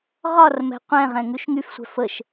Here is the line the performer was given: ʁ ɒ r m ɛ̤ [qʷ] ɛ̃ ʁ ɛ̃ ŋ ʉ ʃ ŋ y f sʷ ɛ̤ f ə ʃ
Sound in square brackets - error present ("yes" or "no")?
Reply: no